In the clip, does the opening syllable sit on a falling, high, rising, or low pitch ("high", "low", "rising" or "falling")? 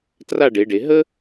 falling